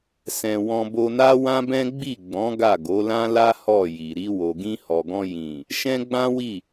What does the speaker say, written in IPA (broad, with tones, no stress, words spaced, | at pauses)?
sɛ̃˧ wɔ̃˧bo˧na˦ wã˦bɛ̃˦ ɡ͡bi˦˨ɡ͡bɔ̃˨˦ ɡa˦˨ɡo˨˦lã˦la˦ hɔ˦˨ji˨ ɾi˧ wo˨ɡĩ˧hɔ˨ɡɔ̃˧ jĩ˨ | ʃɛ̃˦ɡ͡bã˦wi˦˨